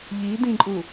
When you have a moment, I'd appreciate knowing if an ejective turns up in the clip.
yes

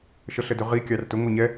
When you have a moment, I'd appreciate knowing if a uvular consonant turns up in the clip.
yes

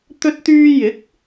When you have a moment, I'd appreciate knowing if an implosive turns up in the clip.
no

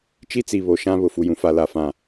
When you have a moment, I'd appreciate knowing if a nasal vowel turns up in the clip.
yes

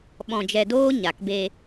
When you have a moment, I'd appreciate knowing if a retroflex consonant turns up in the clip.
no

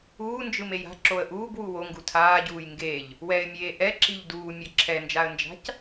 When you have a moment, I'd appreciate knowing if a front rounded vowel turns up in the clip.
no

